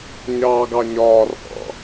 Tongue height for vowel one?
low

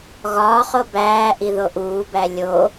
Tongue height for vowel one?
low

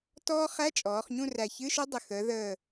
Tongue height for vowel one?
mid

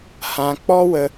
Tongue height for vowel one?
low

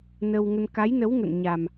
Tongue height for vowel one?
mid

